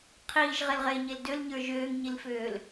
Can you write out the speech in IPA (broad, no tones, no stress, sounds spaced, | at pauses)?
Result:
qʰ iː ʒ ʁ e l ʁ eː ɲ e l d ø l ɲ ə˞ ʒ øː ŋ ɲ i l f øː l